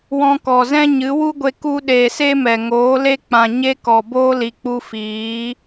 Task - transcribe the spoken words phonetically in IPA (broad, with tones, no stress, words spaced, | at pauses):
wɔ̃˧kɔ˨zɛ̃˦ɲɨ˨˦ wu˦ɡʷe˧ ku˧ɗeː˨ se˦mɛ˨ŋoː˨˦le˦ k͡pã˨ɲe˦ kɔ˨ boː˦li˨k͡pu˧ fiː˨˦